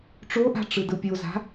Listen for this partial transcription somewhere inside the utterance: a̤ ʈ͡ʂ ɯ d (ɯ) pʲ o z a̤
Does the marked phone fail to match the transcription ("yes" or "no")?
no